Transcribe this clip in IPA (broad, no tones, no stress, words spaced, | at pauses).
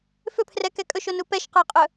fʏpʰrɛkɛ kʼɵʃonu pɛʃqə˞qʼɵ